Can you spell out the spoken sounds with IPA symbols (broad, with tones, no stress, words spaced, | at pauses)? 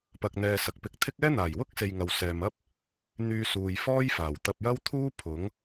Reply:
pɐ˨k̚n̪ɛː˨ sɐ˨k̚pɪ˧k̚t̪ʰɪ˥k̚ ɛː˥n̪aː˨˩jwʊ˥k̚se˨j ŋɐ˨wsɛː˨mɐ˥p̚ | n̪yː˧suː˨j fɔː˥jfaː˨˩w t̪ɐ˧p̚jɐ˥wt̪ʰuː˥ pʰʊ˨˥ŋ